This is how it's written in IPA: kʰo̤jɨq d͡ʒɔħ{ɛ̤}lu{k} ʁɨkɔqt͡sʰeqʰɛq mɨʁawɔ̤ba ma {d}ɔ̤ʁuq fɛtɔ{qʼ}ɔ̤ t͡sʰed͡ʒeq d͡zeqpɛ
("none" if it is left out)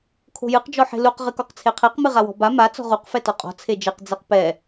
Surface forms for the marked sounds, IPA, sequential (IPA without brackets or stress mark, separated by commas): e̤, q, t͡s, qʼ